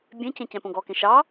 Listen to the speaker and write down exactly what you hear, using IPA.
bʲẽcẽ cɛ̃põɡɔkẽ ʃɑ

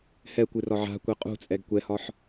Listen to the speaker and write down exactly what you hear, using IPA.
hɛkʷɨrɒ ʕa̤kʷɛ qʼṳt͡sʼɛɡ kʷɛhɒħ

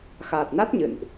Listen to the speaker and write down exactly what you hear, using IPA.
xaː˨˩t̚na˦˥t̚ ɲɨ̰˧˨nʔ

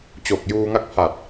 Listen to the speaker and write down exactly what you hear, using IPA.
t͡ɕo˨˩k̚juː˧ŋa˥˩k̚pʰa˨˩t̚

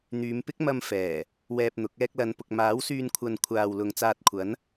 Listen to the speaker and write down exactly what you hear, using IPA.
n̪yː˨˧mpɪ˥k̚mɐ˧m fɛː˨˩ | wɛː˧p̚n̪ʊ˨˥k̚ ɛː˧k̚lɐ˨˧npʊ˨k̚ maː˨˥wsyː˧nkʷʰɐ˨n kʷʰaː˨wlʊ˨ŋ t͡saː˧t̚kʷʰɐ˨˥n

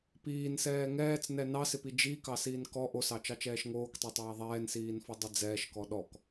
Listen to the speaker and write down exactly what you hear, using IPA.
piːnsɛː ŋɛːt͡snɛ nɑsɪpi d͡ʒikɑsiːn kɔ ʔosɑt͡ʃɑt͡ʃɛːʃ ŋoːktˤotˤaː ðˤɛːnsiːnfɔdˤi d͡zɛːʃkɔ ɗɔk

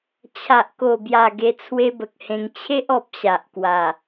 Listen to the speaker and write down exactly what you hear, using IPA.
t͡ɕʰa˨ʔko˨˩bja˨˩ ɡe˧t͡sʰwe˦bə˨k̚hẽ˧ŋ t͡ɕʰe˦ʔɔ˨p̚ ɕa˨ʔkwa˨˩

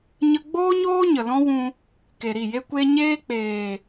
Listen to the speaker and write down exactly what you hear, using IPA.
ɲə˧ɡ͡boː˦ɲoː˦ ɲə˨lɔ̃˦wũ˧ | ke˨ɾi˦˨je˦kʷe˦ ɲeː˦k͡peː˨

